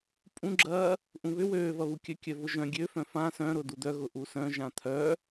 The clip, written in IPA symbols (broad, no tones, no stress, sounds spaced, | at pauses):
pʼ ũ ɡ͡ǁ ɐː | ʔ ũ β ʏ w øː v ɐ β u kʲ œ kʲ œ v ʊ ʒ œ̃ ɡʲ ø f œ̃ f ã s œ̃ ɾ ʊ d u d̪ œ ɣ ʊ ʔ u s œ̃ ʒ ã t̪ʰ œ